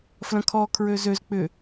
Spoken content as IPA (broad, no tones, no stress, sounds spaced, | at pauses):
f l ɐ̃ kʰ ɔ kʰ ɹ ø z ø z k͡p ʏ